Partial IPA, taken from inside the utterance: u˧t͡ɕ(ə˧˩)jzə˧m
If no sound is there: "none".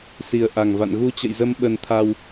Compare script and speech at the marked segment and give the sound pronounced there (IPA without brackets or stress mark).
ə̰˧˨